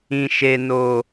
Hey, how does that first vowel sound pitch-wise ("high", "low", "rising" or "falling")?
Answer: low